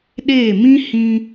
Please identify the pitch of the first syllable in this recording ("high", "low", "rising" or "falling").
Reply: falling